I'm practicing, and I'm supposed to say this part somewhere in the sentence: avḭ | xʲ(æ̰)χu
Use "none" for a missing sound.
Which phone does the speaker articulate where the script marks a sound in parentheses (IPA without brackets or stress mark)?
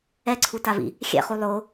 ɛ̰